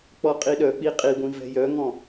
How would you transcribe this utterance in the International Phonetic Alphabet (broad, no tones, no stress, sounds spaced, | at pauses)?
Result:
k͡p ɔ qʼ i ɗ œ k͡p i qʼ i ɡʷ ĩ v ɛ̤ j œ ŋ ɔ̃